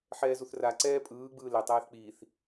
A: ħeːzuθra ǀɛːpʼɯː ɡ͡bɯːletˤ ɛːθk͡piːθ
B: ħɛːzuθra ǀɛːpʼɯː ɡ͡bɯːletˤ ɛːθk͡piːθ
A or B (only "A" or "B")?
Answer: B